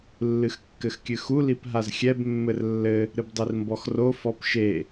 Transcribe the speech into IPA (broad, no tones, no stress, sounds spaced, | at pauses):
lː ɨ x kː ɘ x kʲ ɨ x u l i p ɦ a z xʲ ɛ b mː ɘ r lː ɘ | ɾ ɨ b dˤ i r m b ɔ x r o f ɔ p ʃ e